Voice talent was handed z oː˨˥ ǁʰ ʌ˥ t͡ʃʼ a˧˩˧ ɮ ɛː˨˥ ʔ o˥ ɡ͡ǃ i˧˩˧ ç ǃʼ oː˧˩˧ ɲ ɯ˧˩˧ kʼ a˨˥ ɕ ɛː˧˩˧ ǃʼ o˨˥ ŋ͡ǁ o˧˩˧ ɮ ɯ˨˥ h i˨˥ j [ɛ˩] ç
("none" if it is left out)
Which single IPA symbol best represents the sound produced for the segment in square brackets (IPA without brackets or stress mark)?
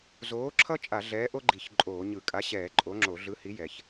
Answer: ɛ˩